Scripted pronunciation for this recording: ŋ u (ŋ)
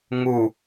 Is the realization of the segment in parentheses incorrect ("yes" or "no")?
yes